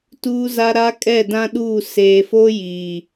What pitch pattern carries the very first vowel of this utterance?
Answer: high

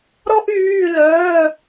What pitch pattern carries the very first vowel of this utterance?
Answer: high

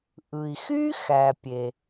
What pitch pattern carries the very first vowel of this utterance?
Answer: low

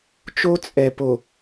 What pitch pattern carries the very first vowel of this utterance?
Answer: high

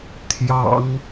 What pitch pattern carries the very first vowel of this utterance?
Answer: low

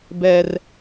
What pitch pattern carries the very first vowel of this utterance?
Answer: high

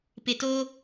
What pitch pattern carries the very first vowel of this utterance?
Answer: low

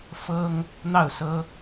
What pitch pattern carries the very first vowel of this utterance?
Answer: high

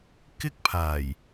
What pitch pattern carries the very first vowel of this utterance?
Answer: high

